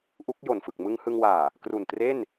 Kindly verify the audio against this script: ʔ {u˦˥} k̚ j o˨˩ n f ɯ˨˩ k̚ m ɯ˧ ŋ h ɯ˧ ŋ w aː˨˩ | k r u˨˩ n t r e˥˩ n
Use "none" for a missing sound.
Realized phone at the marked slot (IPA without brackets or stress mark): u˦˥